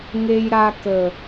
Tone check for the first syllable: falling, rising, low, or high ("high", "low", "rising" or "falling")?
high